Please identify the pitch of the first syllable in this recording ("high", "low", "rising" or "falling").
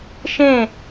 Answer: falling